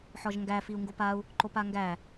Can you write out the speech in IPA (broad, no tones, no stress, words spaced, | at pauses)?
ħɔʒŋɡæ fiu̯ŋɡopau̯ | ǃopaŋɡæ